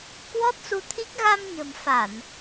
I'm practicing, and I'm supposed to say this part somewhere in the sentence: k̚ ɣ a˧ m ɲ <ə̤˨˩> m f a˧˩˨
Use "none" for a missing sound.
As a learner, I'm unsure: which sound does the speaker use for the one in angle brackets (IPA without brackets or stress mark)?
ə̤˨˩